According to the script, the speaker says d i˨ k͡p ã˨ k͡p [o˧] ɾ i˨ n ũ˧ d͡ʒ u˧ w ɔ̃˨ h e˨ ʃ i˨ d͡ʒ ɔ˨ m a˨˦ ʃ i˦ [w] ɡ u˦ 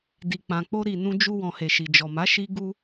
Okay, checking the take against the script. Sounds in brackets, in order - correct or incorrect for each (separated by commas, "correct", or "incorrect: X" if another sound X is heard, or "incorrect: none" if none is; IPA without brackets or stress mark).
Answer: correct, incorrect: none